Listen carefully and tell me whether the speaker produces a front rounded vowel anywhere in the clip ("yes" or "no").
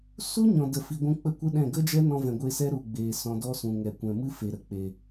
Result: no